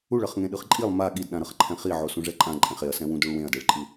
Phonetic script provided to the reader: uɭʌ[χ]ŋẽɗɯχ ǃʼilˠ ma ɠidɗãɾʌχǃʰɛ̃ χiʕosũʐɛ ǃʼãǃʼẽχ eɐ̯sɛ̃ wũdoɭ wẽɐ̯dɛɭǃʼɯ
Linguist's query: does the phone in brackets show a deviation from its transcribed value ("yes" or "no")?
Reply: no